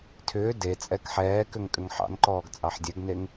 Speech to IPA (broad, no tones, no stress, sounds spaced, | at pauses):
tʰ ʏː d e t͡sʼ ɛ k ħ ɛː k ʏ ŋ kʼ ʏ ŋ ħ ɑ̰ n ǃ ɔː ɡ t͡sʼ ɑ ħ dʲ ɛ ɡ n e ŋ